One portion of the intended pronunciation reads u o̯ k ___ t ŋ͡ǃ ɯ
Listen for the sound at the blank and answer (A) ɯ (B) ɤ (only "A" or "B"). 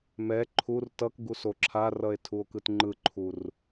A